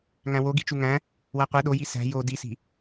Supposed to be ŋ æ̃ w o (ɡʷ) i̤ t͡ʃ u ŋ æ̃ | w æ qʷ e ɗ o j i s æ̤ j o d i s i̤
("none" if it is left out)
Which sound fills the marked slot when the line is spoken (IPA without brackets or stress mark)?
ɡ